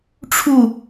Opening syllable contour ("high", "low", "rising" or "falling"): falling